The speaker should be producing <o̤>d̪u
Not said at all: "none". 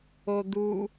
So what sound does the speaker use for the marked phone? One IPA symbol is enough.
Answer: o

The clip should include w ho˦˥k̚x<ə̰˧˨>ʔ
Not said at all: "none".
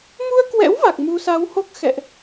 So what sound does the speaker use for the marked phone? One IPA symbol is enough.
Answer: ɛ̰˧˨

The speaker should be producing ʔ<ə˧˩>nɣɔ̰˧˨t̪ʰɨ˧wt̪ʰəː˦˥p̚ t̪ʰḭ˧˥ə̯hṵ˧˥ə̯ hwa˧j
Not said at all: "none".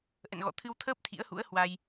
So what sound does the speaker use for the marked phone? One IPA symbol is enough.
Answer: ə̰˧˨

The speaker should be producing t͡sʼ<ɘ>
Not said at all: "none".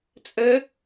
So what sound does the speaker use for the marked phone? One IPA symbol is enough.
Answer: ɘ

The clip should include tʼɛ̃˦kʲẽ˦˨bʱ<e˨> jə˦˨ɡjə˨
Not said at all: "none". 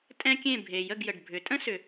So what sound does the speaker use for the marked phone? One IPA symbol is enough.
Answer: e˨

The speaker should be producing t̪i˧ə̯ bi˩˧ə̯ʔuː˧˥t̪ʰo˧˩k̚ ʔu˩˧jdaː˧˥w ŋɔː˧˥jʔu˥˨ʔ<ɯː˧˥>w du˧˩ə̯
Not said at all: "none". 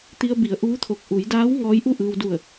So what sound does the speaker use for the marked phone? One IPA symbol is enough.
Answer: ɯː˧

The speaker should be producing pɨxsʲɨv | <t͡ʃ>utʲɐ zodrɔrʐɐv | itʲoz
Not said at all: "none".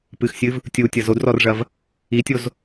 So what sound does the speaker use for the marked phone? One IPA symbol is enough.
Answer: tʲ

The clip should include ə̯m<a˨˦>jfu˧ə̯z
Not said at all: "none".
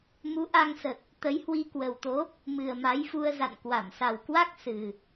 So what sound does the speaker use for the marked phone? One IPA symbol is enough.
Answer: a˨˦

